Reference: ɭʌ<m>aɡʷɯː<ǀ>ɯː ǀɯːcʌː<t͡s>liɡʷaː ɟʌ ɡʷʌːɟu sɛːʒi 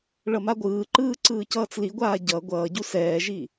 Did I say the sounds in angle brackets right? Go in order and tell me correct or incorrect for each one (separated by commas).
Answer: correct, incorrect, correct